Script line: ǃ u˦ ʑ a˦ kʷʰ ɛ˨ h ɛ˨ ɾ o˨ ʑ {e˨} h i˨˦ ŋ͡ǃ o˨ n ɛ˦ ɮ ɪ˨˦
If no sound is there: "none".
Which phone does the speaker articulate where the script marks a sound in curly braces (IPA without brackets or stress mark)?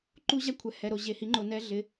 e˨